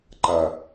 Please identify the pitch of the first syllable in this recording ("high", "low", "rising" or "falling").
low